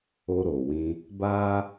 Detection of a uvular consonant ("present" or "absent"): absent